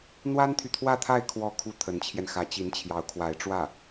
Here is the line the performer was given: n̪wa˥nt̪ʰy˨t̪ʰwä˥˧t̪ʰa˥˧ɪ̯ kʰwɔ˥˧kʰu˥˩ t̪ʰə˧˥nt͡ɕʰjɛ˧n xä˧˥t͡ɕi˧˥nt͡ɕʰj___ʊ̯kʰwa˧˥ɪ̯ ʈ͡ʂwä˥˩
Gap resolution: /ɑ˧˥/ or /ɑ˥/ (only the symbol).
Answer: ɑ˧˥